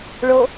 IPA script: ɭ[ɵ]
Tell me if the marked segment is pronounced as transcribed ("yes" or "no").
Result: no